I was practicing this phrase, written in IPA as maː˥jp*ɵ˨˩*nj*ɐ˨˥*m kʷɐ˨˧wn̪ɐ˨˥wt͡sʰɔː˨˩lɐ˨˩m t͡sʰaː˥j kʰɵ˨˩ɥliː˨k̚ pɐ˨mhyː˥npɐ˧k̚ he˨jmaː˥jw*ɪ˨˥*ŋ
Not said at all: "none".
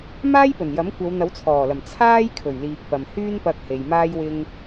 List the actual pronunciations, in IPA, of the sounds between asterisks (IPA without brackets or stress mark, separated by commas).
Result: ɵ˨˩, ɐ˨˥, ɪ˥